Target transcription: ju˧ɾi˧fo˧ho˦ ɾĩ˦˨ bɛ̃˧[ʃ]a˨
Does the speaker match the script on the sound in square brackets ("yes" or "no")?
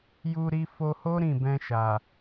yes